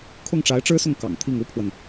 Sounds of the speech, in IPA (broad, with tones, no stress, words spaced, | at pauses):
kʰʊ˥˩ŋʈ͡ʂa˧˥ɪ̯ʈ͡ʂɻ̩˥sʊ˥˩ŋ kɑ̰˨˩ŋt̪ʰi˥˩ŋ u˥pʰwə˨n